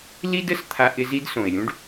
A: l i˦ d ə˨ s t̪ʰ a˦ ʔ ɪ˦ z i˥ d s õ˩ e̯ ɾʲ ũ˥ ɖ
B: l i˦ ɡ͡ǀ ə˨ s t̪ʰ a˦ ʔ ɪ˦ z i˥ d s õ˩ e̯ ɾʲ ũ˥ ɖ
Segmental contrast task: A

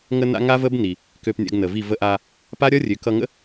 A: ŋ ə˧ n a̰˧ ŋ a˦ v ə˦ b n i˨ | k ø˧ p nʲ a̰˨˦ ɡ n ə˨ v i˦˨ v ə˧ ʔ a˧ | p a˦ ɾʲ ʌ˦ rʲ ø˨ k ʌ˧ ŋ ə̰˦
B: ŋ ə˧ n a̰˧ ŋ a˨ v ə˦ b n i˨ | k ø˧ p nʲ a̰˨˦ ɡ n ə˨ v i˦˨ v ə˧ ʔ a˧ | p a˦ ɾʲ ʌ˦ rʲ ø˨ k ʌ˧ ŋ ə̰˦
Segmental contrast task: A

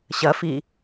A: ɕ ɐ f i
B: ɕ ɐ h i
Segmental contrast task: A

